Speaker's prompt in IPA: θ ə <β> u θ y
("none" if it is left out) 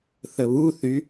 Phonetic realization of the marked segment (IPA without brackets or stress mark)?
β